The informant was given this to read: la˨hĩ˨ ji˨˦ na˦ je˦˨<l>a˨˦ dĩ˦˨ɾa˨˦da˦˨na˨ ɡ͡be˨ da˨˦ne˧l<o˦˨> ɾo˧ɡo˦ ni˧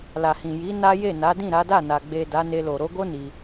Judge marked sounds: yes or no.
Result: no, no

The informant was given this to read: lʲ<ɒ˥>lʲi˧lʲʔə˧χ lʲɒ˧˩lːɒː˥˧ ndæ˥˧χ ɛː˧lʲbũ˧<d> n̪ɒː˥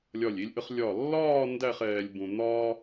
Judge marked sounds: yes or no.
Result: no, no

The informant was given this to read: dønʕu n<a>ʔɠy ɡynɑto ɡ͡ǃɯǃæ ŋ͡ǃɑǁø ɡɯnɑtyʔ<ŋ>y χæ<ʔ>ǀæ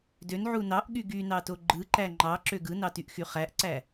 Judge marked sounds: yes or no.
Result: no, no, yes

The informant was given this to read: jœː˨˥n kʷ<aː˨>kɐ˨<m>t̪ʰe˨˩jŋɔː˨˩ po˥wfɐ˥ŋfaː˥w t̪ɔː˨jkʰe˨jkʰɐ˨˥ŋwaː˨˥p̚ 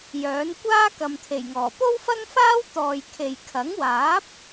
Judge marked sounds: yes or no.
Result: no, yes

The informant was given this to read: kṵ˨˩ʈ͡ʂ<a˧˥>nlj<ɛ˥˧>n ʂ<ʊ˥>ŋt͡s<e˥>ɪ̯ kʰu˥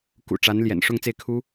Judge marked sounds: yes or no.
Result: yes, no, no, no

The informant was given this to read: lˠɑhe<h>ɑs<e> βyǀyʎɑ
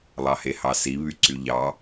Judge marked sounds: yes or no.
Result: yes, no

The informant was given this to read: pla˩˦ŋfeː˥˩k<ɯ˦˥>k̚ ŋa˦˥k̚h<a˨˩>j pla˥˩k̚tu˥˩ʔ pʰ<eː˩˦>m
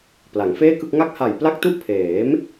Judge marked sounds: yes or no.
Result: no, yes, yes

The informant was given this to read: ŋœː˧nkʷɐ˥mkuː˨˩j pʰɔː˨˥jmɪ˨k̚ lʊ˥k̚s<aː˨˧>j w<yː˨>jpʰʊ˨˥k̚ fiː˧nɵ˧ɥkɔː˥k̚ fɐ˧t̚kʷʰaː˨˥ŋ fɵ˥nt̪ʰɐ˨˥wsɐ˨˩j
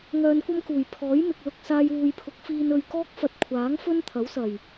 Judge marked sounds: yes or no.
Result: no, no

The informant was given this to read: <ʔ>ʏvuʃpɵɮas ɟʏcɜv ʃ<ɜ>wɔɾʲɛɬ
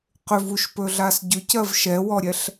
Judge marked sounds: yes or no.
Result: no, no

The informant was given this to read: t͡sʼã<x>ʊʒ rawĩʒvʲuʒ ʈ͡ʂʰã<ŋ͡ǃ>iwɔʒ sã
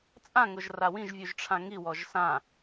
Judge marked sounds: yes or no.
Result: no, no

